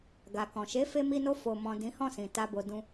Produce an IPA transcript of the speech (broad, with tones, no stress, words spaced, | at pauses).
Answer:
ɡa˨kɔ̃˨ ʃe˨˦fe˧mi˧no˧ fo˧ mɔ̃˨ dĩ˨˦hɔ̃˦˨sĩ˨ ta˨bo˨ dũ˧